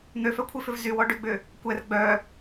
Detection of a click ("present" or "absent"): absent